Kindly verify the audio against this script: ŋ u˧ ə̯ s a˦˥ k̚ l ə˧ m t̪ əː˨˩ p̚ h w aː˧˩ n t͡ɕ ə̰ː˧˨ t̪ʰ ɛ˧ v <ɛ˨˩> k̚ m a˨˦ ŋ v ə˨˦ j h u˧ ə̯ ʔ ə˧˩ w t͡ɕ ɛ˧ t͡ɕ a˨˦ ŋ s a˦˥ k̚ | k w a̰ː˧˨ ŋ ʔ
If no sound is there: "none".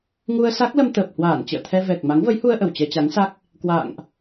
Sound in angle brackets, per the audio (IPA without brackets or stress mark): ɛ˨˩